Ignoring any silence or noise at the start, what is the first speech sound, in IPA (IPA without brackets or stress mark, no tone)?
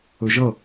ɵ